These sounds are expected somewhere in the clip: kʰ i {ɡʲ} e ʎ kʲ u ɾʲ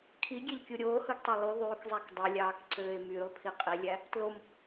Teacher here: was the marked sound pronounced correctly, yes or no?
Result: yes